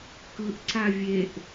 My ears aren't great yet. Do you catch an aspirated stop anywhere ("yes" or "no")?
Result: no